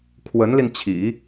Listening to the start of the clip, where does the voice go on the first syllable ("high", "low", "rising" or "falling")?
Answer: rising